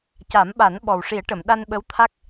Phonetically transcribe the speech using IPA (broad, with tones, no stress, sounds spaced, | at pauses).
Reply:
c a˨˩˦ m ɓ a˨˩˦ n ɓ ɔ˨˩ w ʂ i˨˩˦ ə̯ ʈ ə˨˩˨ m ɗ a˧ n ɓ ə˧˥ w t̪ʰ a˦˥ k̚